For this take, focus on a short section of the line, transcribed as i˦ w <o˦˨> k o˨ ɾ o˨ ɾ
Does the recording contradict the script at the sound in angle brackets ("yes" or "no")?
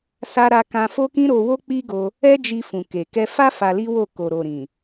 no